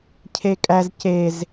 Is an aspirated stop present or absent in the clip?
present